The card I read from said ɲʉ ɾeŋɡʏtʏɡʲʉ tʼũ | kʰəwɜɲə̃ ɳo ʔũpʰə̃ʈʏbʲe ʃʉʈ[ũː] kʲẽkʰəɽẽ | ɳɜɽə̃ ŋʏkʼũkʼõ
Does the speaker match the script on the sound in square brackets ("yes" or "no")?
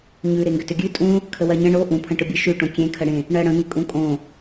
no